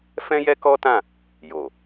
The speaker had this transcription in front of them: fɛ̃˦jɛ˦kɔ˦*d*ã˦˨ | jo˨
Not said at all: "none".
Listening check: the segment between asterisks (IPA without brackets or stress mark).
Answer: t